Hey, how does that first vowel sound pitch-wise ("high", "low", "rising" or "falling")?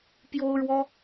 high